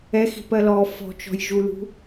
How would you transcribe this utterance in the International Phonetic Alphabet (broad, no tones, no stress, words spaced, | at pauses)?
ɛxi̤pɜ lɔ fɔ̤t͡ʃɔ̤jʒulṳ